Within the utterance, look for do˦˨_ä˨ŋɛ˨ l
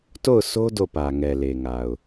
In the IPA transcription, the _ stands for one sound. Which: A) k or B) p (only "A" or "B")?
B